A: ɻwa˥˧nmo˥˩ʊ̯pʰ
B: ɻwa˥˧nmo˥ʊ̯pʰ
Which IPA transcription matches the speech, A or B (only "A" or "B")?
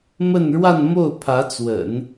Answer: A